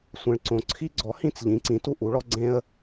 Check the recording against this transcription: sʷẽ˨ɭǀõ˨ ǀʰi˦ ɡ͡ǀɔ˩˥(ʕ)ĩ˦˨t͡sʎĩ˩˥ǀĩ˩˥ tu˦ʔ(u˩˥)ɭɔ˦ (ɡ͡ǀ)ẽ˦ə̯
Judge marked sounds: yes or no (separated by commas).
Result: no, yes, yes